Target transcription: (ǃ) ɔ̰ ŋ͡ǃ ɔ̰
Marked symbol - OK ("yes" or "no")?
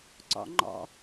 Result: no